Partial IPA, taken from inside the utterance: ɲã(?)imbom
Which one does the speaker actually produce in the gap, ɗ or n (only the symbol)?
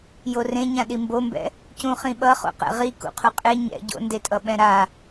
ɗ